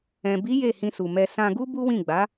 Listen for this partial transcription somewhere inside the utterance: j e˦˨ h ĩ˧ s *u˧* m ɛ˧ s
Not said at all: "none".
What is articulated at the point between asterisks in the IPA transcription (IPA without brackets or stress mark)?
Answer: u˨